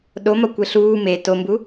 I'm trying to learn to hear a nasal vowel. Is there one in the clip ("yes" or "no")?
no